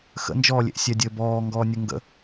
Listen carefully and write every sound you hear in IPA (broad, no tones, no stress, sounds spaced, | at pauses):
x ə̰ n d͡ʒ ɔː lʲ ḛ ʔ sʲ ɛ dʲ ɘː b ɔː ŋ ɡ ɔː nʲ ə ŋ ɡ ə̰